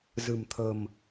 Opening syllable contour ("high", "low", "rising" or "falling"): low